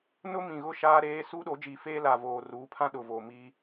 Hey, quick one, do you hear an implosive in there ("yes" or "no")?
yes